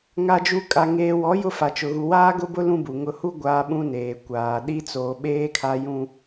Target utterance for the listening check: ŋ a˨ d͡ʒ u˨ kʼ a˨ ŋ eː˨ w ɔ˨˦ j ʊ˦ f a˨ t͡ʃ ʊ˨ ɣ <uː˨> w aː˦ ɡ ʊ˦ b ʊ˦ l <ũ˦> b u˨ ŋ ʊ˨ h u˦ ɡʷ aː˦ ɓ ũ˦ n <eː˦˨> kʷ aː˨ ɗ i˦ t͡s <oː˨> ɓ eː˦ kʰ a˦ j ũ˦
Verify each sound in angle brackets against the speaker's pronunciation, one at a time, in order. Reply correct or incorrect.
incorrect, correct, incorrect, correct

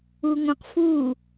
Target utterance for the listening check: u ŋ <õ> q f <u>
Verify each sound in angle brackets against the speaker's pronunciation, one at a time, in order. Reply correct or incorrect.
correct, correct

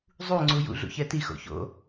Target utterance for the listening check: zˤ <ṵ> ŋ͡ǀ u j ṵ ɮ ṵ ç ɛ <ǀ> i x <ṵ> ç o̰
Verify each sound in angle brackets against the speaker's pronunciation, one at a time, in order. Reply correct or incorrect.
incorrect, incorrect, incorrect

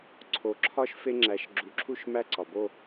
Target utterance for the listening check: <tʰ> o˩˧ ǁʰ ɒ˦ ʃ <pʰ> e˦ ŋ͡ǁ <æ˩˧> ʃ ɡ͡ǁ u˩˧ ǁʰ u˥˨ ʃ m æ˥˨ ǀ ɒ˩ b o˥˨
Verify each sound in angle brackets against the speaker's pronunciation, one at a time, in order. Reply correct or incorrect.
incorrect, incorrect, correct

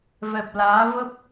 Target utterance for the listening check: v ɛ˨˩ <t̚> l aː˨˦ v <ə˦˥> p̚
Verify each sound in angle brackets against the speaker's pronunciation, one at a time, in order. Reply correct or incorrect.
incorrect, correct

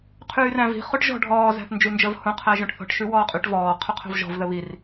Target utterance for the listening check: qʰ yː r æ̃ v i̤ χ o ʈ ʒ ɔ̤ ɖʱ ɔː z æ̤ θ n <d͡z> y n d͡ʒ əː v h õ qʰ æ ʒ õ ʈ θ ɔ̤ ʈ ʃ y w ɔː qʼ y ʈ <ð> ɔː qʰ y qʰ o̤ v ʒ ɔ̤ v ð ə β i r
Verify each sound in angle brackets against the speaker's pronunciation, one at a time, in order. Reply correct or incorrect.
incorrect, incorrect

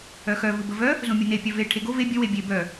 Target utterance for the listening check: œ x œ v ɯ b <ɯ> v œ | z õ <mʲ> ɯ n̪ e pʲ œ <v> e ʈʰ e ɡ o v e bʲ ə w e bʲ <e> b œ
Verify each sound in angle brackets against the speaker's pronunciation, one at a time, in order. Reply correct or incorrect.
incorrect, correct, correct, correct

